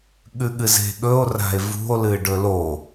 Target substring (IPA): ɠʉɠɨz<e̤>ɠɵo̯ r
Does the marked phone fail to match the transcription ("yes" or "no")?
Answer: no